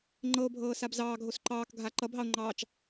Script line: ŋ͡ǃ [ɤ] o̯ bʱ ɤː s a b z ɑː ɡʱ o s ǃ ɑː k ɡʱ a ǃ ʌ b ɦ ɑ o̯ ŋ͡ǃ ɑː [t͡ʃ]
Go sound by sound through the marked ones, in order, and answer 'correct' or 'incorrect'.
correct, correct

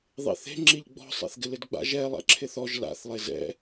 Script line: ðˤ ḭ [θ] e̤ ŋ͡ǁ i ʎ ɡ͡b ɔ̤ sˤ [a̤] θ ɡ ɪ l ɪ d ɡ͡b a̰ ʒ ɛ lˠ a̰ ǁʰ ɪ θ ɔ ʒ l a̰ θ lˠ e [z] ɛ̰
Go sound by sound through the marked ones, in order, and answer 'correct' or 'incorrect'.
correct, incorrect: a̰, correct

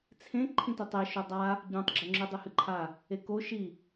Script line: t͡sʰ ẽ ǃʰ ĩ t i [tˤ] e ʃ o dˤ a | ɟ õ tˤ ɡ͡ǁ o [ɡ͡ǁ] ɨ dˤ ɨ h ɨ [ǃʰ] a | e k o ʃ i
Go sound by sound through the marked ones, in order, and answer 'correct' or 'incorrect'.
correct, incorrect: ŋ͡ǁ, correct

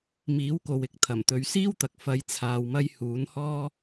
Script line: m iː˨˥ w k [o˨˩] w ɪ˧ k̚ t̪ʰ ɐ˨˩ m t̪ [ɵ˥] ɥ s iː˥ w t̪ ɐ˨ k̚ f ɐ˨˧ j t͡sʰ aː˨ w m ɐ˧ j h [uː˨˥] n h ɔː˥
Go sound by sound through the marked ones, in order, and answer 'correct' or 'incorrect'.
incorrect: o˨, incorrect: ɵ˨˧, correct

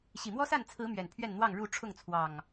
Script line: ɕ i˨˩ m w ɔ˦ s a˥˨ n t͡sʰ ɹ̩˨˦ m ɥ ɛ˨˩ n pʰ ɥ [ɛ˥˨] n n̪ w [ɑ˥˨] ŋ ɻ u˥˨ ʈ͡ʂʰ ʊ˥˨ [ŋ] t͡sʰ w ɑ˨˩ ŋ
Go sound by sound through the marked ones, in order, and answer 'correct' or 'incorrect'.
correct, correct, correct

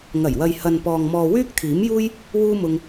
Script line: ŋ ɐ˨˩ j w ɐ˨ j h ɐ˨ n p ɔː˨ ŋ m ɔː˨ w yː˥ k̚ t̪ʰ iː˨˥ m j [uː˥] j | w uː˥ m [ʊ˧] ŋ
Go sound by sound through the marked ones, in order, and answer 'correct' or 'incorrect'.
correct, correct

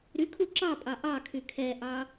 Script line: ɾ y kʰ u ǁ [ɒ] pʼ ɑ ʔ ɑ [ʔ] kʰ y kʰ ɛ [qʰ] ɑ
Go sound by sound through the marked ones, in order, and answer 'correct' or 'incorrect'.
incorrect: ɑ, incorrect: none, incorrect: ʔ

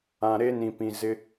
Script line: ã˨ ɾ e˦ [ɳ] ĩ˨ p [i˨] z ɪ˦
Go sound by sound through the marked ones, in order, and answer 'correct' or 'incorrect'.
incorrect: n, incorrect: ĩ˨

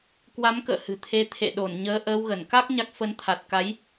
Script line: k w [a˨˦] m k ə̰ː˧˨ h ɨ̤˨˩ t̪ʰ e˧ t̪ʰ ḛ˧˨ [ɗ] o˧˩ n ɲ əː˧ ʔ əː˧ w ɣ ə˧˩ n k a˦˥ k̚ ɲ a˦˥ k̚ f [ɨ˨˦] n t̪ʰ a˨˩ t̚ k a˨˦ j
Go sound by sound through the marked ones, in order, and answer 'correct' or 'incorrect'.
correct, correct, incorrect: ə˨˦

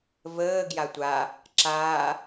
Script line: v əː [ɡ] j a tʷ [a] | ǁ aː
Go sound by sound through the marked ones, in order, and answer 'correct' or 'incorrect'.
correct, correct

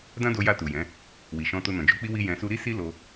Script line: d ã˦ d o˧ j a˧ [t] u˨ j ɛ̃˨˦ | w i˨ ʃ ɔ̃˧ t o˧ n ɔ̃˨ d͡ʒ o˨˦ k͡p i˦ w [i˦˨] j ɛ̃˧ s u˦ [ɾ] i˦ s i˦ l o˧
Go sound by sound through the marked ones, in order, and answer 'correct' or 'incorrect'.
correct, incorrect: i˦, correct

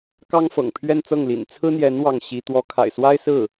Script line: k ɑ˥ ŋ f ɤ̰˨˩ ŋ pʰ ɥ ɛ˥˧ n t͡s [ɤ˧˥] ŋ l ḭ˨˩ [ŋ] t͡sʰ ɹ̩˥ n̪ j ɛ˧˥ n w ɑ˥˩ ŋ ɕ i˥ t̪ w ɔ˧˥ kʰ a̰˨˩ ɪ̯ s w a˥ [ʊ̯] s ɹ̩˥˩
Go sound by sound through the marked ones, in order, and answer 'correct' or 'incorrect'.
incorrect: ɤ˥˩, incorrect: n, incorrect: ɪ̯

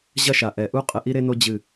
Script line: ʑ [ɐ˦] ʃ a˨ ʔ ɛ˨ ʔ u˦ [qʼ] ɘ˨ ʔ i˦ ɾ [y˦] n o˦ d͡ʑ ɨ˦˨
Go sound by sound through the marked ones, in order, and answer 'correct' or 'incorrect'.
correct, correct, incorrect: e˦

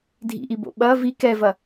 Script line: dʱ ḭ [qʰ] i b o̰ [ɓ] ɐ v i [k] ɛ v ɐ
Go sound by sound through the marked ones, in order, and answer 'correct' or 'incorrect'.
incorrect: ʔ, correct, correct

